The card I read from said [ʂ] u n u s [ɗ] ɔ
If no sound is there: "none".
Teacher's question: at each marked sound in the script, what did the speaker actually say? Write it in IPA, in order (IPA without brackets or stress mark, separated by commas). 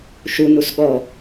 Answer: ʃ, ɠ